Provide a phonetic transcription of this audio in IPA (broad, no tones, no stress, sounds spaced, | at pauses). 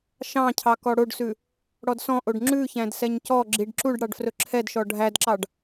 ʃ ɑ̃ cʰ ɑ k ɔ ɽ o ɖ s ʉ | ɽ ɔ d s ɔ̃ ʔ o ɖ ŋ͡ǁ ʉ ç æ̃ d s ɛ ɲ c ɔ ɡ͡ǁ i ɖ ǁ u ɖ ɽ ɑ ɖ f r ɵ ǁʰ ɛ d ʃ ɔ ɖʱ æ d ǁ ɑ ɖ